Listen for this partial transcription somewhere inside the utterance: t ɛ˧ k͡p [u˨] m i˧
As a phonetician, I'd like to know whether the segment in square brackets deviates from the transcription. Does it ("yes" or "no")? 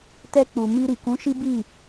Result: no